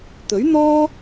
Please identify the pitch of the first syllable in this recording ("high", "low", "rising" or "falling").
rising